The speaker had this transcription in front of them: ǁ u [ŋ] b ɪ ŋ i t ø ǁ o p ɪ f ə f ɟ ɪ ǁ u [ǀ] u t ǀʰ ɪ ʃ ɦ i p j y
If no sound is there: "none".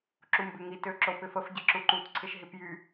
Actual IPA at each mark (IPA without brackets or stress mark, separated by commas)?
m, ǃ